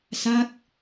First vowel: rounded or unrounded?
unrounded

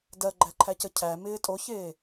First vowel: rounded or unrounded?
unrounded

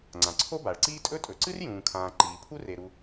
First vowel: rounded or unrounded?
unrounded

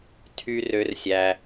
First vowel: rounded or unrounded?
rounded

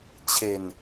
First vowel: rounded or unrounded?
unrounded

